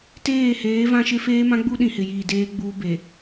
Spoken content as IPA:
t eː˦˨ h eː˨˦ v ã˦ ʃ ɪ˦ f eː˦ m ã˦ ɡ͡b u˦ ɗ ĩ˨ h ɪ˨ j iː˨ d eː˦ ɡ͡b uː˦ b e˨

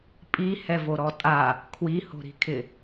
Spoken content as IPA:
pʼ i h ɛ v o ɾ ɔ tʼ a | kʰ w i h o̤ ɾ i̤ kʰ ɪ

